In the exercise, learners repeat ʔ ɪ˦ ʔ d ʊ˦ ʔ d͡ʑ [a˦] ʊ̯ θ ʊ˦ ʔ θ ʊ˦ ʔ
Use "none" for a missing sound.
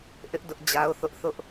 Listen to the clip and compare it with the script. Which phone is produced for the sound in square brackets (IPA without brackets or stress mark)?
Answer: a˦